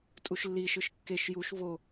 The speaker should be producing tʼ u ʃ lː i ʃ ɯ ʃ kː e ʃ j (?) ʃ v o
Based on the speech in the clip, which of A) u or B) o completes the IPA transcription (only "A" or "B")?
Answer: A